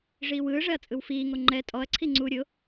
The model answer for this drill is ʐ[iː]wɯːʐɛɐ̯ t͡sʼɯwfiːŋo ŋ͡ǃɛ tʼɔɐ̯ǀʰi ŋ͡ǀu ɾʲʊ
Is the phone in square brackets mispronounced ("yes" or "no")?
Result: no